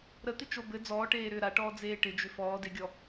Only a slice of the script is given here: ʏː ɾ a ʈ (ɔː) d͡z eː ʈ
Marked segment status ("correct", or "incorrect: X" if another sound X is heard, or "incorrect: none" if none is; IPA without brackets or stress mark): correct